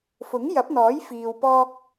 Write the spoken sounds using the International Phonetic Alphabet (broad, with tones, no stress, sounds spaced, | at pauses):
f ʊ˨˥ ŋ j ɐ˨˥ p̚ n̪ ɔː˨˥ j f iː˧ w p ɔː˧ k̚